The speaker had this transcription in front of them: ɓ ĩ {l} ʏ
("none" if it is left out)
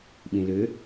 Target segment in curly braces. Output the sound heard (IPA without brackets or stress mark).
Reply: l